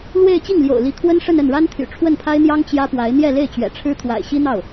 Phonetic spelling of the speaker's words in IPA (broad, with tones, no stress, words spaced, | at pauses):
lwe˥˧ɪ̯ t͡ɕi˥˩ŋljo̰˨˩ʊ̯ li˧˥kʰwə˥nʂə˥˧n ə˥˩nɻa˥nt̪ʰy̰˨˩ ʈ͡ʂʰwə˥˩npʰa˥ɪ̯n̪jɑ˥ŋ t͡ɕjä˥pwa˧˥ɪ̯ n̪jɛ˥˧le˥˩ɪ̯t͡ɕɥɛ̰˨˩ʈ͡ʂʰɻ̩˥ t̪ʰwa̰˨˩ɪ̯ɕi˥n̪ɑ˥˩ʊ̯